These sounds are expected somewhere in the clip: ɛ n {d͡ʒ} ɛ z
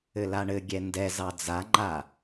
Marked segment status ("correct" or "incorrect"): incorrect